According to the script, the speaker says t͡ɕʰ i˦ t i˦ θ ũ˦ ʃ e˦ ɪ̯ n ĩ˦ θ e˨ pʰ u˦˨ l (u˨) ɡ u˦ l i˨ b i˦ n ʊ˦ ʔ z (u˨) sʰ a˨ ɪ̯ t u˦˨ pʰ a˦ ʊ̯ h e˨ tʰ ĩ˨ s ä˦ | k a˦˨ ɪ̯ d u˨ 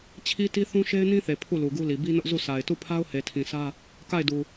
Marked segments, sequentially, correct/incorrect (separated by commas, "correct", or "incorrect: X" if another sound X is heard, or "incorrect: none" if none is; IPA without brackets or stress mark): correct, incorrect: u˦˨